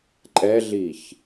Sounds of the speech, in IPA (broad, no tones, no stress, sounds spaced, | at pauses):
ǃʼ ɛ ɮ i ç